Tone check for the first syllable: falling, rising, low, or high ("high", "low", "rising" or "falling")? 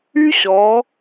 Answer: high